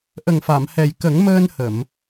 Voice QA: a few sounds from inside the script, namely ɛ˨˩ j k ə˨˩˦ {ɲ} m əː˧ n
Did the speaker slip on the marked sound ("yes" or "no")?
yes